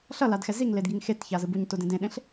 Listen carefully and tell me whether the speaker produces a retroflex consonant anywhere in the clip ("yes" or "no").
no